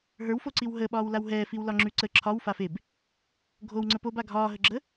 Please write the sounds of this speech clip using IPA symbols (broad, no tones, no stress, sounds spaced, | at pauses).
ɦ ə˞ w f o ǀ i w ɦ əː ɓ ɒː w l a w ɦ ɛː f i w l ɒ ŋ͡ǁ ʉ ǀ ə ǁʰ ɒ w f a f e b | ɡʱ o w ŋ͡ǀ ə p o b a ɡʱ ɒː ɦ ə ɡ͡ǁ ə